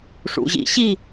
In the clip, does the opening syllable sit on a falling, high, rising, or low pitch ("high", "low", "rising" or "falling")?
low